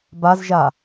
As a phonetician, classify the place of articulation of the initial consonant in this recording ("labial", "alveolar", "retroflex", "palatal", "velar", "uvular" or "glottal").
labial